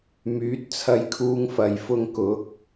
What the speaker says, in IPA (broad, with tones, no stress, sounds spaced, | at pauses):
m yː˨˥ t̚ t͡sʰ ɐ˧ j kʰ uː˧ ŋ f ɐ˨ j f ʊ˧ ŋ k ʊ˨˥ k̚